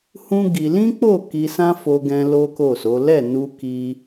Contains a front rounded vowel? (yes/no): no